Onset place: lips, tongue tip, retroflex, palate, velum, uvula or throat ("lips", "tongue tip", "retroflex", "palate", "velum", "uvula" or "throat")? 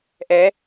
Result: throat